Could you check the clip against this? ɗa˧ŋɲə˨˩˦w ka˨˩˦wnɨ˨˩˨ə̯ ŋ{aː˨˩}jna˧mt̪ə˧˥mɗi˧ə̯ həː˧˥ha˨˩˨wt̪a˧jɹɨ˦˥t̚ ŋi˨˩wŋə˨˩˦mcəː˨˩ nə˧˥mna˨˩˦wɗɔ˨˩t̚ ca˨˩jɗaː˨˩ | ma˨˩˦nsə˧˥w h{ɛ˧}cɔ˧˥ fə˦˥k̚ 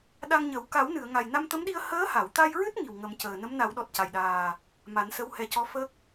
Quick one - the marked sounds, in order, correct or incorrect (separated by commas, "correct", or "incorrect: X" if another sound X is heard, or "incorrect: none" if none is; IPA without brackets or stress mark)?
incorrect: a˨˩, correct